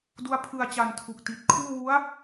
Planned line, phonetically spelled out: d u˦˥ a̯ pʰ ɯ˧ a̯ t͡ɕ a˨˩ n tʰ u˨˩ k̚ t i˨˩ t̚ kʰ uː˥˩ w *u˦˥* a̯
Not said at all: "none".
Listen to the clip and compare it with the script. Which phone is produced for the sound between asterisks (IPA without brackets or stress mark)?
u˦˥